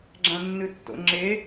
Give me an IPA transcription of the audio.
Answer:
ɡ͡ǁ ã nː ɨ tː o̰ ŋ͡ǁ e

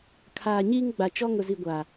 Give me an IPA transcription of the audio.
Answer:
kʰ aː˨ ɲ iː˦ ŋ ɡ͡b a˨ t͡ʃ ɔ˦ ŋ ʊ˨ z i˨ ɡʷ aː˨

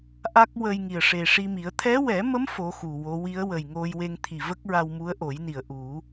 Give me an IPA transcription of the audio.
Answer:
ʔ a˦˥ k̚ w ə˧ j ŋ i˨˩ ə̯ ʂ e˨˩ ʂ i˧ m i˨˩˦ ə̯ t̪ʰ ɛ˧˥ w ɛ˨˩˦ m ə˧˥ m f o˧˥ x u˨˩ w o˧˥ w i˧˥ ə̯ w ə˨˩ j ŋ o˧ j w e˧ ŋ t̪ʰ i˨˩ v ə˦˥ k̚ ɹ a˧ w m u˧˥ ə̯ ʔ o˨˩˦ j n i˨˩˨ ə̯ ʔ u˨˩˦

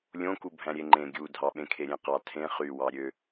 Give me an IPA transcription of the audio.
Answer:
lʲ õ k u bʱ æ̃ ɾʲ e ŋ͡ǃ ẽ ɡʲ u dʱ ɑ ɓ ẽ kʰ e ɾʲ ẽ q ɑ tʰ ẽ χ y w ɑ ɾʲ ø

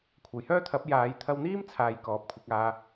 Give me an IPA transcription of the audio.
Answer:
kʷʰ ɐ˨˩ j h œː˥ t̪ʰ ɐ˨˥ p̚ j aː˨˧ j t̪ʰ ɐ˧ w n̪ iː˥ m t͡sʰ aː˨ j k ɔː˨˥ p̚ kʷʰ ɪ˨˥ k̚ aː˧

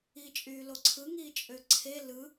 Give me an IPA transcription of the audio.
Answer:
i t͡ʃʼ yː l o ǀʰ ɯ ŋ iː t͡ʃʼ ø ǀʰ e l ɯ

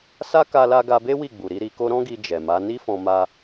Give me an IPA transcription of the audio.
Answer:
s a˦ k a˧ l a˧ ɡ a˧ b e˦ w i˦˨ ɡ͡b u˨ ɾ i˧ ɾ i˧ k o˦ ɾ ɔ̃˦ ɡ i˧ d͡ʒ ɛ˨ m a˨˦ n i˦ f ɔ̃˧ m a˧

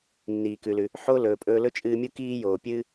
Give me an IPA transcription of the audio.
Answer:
nː iː˩ k ʉ˩ l ʉ˩ | ħ o˧ l ɵː˩ pʼ ɵː˧ l ɵ˥ t͡ʃʼ ɨː˧ mʲ u˥ k iː˥ j oː˩ pʲ ɨː˥

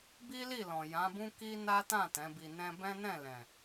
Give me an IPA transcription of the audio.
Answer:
b i˦ l i˦˨ l ɔ̃˨ j ã˨˦ b ũ˦ k i˦ n a˦ t ã˦˨ t ɛ̃˨˦ b i˧ n ɛ̃˦ b ɛ̃˦ n ɛ̃˦˨ l ɛ̃˨

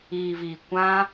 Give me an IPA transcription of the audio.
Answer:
iː˨ v iː˨ kʷ ã˦

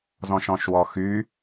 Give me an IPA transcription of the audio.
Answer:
z ɔ̃ ʃ ɔ̃ ʃ w ɔ x y

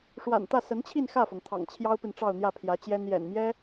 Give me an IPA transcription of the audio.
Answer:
ʂ w a̰˨˩ n t̪ ä˥˩ s ə˧˥ n t͡ɕʰ i˥˧ n x ä˥˩ f ɤ˩ ŋ t̪ʰ ɑ̰˨˩ ŋ t͡ɕʰ j ɑ˥ ʊ̯ p i˨ n ʈ͡ʂ ɑ˥˧ ʊ̯ n̪ j ä˥˩ pʰ j ä˧˥ t͡ɕ j ɛ˥ n j ɛ̰˨˩ n m j ɛ˥

